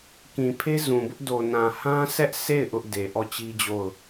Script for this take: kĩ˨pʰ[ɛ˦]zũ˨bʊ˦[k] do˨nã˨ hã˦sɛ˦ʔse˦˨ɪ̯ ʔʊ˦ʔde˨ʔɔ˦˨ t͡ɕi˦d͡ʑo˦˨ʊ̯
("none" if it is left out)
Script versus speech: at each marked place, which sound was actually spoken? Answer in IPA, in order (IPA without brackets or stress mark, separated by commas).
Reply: e˦, ʔ